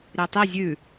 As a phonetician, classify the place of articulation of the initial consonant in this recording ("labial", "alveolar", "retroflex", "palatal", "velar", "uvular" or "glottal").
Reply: alveolar